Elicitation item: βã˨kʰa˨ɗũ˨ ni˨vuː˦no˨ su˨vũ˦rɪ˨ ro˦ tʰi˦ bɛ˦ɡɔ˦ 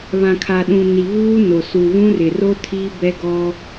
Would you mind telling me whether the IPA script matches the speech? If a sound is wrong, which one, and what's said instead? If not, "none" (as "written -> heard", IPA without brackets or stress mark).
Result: none